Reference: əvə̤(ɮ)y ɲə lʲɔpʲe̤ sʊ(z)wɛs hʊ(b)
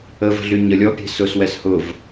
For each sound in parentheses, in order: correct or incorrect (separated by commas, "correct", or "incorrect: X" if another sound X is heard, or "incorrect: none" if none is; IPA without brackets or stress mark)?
correct, incorrect: s, incorrect: v